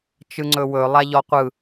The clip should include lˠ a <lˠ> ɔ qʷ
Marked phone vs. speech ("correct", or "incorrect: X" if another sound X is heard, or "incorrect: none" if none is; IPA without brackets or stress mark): incorrect: ʎ